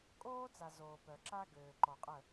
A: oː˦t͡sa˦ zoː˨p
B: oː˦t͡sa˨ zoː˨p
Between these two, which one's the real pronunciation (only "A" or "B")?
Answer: B